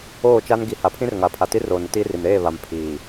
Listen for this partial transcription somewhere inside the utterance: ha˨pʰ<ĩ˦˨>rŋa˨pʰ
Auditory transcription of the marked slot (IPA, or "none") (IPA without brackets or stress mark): ĩ˦